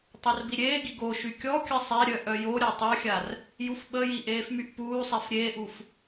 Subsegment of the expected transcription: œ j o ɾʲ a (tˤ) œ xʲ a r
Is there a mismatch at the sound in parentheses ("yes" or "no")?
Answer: no